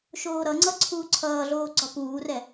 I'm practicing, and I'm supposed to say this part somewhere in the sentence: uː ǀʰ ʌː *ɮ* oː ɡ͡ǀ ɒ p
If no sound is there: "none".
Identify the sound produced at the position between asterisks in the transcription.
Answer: ɮ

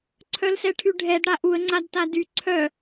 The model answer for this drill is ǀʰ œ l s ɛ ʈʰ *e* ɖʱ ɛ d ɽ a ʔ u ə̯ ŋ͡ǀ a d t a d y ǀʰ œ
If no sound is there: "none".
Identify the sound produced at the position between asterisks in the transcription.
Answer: y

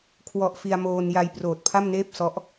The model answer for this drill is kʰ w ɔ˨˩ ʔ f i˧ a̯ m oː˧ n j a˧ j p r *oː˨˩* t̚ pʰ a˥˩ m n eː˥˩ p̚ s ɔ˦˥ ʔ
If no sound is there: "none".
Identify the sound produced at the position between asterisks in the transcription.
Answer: oː˨˩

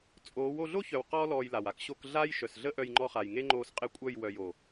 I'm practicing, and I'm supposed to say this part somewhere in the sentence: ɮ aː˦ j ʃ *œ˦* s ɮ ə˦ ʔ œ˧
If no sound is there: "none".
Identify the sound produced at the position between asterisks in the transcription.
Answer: œ˨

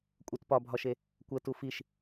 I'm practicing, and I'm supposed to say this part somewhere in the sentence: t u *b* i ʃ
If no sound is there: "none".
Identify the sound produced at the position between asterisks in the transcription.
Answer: f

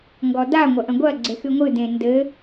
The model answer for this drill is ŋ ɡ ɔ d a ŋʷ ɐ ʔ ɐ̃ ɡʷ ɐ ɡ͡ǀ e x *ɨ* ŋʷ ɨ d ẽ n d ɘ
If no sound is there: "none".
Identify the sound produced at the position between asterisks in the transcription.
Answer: ɨ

